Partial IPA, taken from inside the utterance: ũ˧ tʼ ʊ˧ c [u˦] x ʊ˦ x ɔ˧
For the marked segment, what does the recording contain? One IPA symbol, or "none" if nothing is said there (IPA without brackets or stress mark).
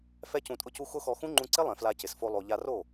u˦